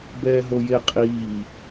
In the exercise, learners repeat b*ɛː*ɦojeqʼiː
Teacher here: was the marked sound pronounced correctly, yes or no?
yes